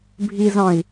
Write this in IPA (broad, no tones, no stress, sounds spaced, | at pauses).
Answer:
bʱ i z ɑ̃ i̯